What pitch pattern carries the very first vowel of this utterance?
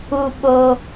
high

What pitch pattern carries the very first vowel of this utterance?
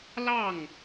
falling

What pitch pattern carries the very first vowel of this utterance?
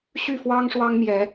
falling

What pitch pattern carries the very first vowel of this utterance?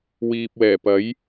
low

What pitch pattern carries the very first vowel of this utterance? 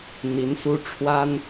rising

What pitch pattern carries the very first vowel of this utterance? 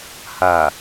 low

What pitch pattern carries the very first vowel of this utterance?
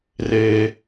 low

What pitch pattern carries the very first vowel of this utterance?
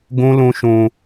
high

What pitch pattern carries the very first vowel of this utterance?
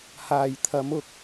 low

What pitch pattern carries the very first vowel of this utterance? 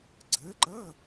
rising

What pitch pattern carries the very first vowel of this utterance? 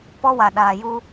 high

